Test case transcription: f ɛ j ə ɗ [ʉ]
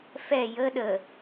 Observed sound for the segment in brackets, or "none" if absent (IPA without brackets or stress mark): ə